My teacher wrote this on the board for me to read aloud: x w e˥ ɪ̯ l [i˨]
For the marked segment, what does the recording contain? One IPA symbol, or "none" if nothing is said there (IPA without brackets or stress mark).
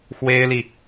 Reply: i˨